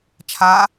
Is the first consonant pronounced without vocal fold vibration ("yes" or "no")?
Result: yes